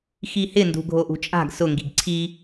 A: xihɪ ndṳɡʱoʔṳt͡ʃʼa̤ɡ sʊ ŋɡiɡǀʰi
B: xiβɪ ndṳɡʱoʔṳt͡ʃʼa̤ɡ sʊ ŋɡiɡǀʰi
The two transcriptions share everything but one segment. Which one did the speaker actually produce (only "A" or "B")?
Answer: A